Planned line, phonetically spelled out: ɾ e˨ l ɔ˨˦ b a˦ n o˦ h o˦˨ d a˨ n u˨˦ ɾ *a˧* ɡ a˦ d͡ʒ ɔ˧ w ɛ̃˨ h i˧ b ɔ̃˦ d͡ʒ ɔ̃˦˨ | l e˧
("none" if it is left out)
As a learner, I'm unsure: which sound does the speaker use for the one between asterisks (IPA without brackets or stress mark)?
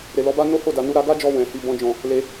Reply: a˧